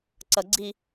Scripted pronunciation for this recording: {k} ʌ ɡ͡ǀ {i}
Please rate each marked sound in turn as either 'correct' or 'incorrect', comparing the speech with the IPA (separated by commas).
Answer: incorrect, correct